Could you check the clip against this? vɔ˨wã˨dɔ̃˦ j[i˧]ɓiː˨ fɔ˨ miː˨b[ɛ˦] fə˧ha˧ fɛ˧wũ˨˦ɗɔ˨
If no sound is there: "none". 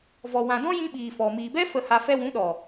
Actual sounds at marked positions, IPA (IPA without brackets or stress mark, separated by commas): ĩ˧, ɛ˦